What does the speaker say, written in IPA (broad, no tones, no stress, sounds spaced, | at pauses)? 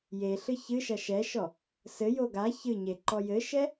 j e ɬ ɨ ç ɨ ʃ ɐ ʃ ɛ ʃ ɔ | s ɘ j o ɡ a ç ɨ ɲ e ǃ ɔ j ɘ ʃ ɛ